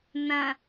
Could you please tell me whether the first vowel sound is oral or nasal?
nasal